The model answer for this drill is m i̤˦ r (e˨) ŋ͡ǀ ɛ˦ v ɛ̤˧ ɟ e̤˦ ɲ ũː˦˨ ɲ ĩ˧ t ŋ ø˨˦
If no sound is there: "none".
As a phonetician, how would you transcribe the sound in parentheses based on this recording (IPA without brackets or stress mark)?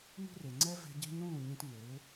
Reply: e˨